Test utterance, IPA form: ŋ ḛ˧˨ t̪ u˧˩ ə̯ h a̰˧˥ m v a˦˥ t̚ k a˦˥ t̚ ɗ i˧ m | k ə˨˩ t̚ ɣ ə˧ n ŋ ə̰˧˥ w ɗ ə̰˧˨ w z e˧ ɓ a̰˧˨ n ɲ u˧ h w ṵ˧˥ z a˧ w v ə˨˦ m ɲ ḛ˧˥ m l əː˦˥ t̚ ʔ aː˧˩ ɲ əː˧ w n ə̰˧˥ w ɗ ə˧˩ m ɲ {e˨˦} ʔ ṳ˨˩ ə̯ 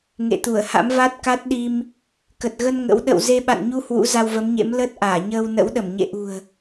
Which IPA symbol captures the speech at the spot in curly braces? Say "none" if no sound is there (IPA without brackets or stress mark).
ḛ˧˨